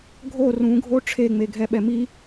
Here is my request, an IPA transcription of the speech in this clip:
ɡʱ o r ũ ɡʱ o ʈ͡ʂʰ e ŋ͡m e ɡʱ ɛ ɓ ɛ m i

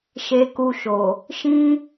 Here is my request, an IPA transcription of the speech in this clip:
ʃ e˧ k u˧ ʃ o˨ | ʃ ĩ˦

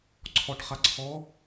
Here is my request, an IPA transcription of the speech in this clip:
ǀʰ ɔ ʈ χ a ǀʰ ɔ

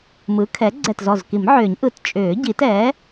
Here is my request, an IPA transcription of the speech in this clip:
m ɯ˩˥ kʰ ɛ˩˥ ɡ͡ǀ ɛ˧˩ t z ɔ˧˩ z k i˨˩˦ m ʕ ʏː˨˩˦ ɲ ʔ ɯ˨˩˦ t t͡ʃʼ ʏː˨˩˦ ɟ i˨˩˦ t ɛː˩˥

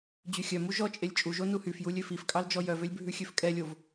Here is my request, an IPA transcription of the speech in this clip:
d͡ʑ ʉ xʲ œ m u ʒ ɔ t͡ʃʼ e lʲ t͡ʃʼ u ʒ o n u h y f j u lʲ ø f i f kʼ ɑ l d͡ʒ ɔ j œ v ø lʲ bʱ ʉ xʲ ø f kʼ ɛ lʲ o v

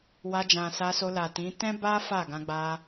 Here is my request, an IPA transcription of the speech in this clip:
w a˧ d͡ʒ ã˨ s a˧ s o˧ l a˨ t ĩ˨˦ t ɛ̃˦ b a˦ f a˦˨ ɡ ã˧ ɡ͡b a˧

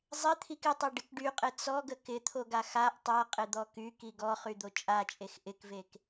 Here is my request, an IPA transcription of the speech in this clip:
zˤ ɪ t̪ʰ i k ɪ tˤ o ɖ ɪ k ɖ y qʼ ɪ t͡s ɔ ɡ ə k ɪ t̪ʰ o ɡ a x a ʔ tˤ a qʼ ɪ d̪ ɔ k y k i ɡ ɔ χ y d̪ o t͡ʃʼ a t͡ʃʼ e x ʔ ɪ k v e k

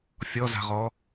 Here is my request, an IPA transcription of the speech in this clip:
fʲ ɔ z a̤ ʁ ɔ

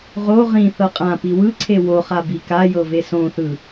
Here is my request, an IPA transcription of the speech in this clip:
ʁ o ʁ ĩ θ ɤ qʼ ã p i w ɯ ǀʰ e w o χ a b i k a j ɤ v e s õ θ ɯ

